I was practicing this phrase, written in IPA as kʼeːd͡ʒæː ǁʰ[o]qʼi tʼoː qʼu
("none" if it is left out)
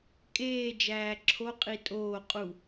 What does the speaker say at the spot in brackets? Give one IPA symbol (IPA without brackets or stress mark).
o